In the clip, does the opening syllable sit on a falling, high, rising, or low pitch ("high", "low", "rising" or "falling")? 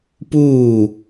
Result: falling